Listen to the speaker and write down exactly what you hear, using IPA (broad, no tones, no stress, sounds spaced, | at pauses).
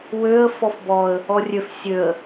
w ø ə̯ f ɔ f b ɔ ə̯ | ɔ rʲ ø f sʲ ø ə̯